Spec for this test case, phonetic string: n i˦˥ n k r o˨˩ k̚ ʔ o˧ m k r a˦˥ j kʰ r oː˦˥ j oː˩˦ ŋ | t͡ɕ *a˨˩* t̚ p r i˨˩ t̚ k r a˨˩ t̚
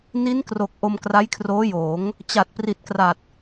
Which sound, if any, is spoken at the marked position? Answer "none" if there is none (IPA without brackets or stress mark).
a˨˩